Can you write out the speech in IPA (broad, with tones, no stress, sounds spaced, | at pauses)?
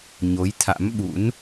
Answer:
ɲ o˨˦ j t̪ʰ a̰˧˥ m ɓ ṵ˧˥ n